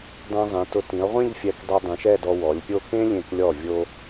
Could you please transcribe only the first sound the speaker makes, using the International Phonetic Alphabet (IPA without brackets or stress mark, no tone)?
dˤ